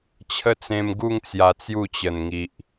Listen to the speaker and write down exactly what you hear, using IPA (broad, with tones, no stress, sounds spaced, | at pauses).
t͡ɕʰ ə˦ t͡s ẽ˧ m ɡ u˥˧ ŋ t͡s j a˧ t͡s j u˥˧ t͡ɕ ə˨˩ n ŋ i˨ ʔ